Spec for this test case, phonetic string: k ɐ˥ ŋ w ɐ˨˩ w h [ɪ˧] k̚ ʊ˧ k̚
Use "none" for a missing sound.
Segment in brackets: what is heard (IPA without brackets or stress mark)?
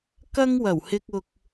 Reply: ɪ˧